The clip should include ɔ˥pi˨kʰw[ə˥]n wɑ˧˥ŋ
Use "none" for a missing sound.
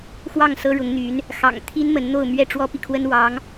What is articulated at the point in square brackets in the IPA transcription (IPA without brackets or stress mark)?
ə˥